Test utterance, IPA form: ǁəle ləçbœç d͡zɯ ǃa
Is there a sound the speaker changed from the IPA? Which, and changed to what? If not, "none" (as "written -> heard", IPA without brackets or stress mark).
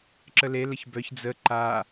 ɯ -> ə